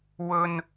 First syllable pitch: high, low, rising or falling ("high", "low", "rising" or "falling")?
high